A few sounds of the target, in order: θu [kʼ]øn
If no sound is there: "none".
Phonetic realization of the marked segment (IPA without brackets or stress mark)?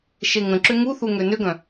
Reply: ŋ